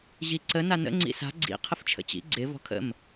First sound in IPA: ʑ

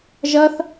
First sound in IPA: ʒ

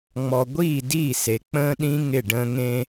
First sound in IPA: ŋ͡m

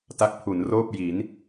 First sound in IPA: t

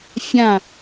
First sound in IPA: fʲ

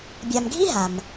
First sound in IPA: bʲ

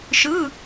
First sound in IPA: ʃ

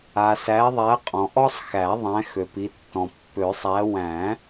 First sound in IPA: a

